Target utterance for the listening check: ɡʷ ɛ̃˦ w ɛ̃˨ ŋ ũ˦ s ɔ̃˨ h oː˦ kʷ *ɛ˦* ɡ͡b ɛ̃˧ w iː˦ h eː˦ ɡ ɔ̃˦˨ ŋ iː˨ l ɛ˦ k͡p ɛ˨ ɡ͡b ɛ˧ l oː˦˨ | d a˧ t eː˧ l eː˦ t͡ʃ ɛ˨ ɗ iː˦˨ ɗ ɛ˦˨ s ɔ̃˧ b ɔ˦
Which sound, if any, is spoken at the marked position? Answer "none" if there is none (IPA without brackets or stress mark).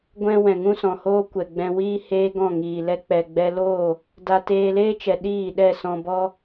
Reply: ɛ˨